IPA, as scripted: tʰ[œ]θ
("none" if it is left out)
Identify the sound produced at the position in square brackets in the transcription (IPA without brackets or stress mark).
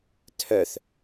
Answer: œ